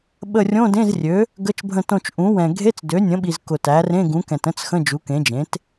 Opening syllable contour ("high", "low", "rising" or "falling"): falling